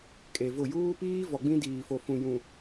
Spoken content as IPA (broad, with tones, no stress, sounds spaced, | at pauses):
kʼ e˨ v ʊ˦˨ j uː˦ p iː˦ v ɔ˨ ɡ͡b ĩ˦ d iː˨ f o˨ f ũ˨ j ũ˨